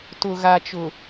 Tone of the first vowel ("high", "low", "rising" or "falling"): low